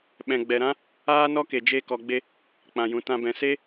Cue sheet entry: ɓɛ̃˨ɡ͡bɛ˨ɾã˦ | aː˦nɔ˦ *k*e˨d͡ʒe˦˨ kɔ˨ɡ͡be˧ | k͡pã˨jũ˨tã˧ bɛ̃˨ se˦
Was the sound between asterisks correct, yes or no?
yes